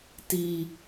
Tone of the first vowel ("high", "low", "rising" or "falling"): high